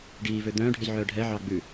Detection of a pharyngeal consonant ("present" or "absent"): present